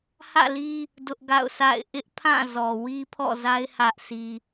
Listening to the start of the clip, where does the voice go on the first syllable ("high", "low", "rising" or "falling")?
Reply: falling